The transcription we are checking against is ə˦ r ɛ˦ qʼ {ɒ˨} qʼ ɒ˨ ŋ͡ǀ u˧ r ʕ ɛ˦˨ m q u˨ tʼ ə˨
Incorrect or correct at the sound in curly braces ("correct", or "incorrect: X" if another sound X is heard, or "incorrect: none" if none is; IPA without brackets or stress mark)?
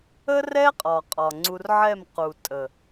correct